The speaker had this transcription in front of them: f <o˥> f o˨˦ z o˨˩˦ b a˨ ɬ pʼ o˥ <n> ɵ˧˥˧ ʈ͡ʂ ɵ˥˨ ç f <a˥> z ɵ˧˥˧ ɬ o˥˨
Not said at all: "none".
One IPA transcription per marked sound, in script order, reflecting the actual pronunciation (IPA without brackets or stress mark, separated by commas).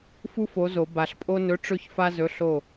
u˥, n, a˥